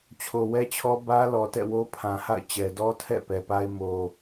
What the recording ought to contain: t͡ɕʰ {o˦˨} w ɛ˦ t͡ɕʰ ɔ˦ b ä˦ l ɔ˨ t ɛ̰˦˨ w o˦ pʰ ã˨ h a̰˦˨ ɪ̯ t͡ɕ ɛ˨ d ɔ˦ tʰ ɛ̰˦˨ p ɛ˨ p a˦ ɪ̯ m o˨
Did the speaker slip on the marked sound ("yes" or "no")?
yes